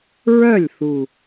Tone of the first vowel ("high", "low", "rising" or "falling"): falling